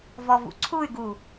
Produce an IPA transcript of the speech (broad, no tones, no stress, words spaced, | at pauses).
vɔvṵǀʰuy̯ɡu